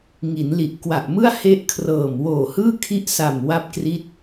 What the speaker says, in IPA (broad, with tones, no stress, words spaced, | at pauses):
ŋi˩˦nli˨˩ʔ kwa˨˩ʔmɯ˥˩a̯ he˦˥ʔkʰrɤː˨˩m woː˨˩hɯː˥˩ kʰi˦˥ʔsa˨˩m wa˥˩p̚kri˥˩t̚